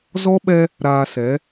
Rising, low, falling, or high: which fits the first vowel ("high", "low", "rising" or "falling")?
high